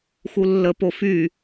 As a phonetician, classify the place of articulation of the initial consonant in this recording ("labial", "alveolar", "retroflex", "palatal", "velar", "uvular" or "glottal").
velar